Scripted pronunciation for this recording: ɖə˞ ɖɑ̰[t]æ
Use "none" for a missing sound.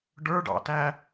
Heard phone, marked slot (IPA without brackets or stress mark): t